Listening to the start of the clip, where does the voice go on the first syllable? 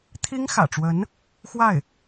high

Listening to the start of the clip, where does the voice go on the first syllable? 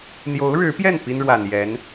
rising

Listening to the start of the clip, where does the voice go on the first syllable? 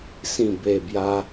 low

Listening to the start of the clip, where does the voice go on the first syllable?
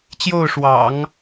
falling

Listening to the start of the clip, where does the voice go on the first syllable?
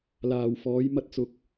low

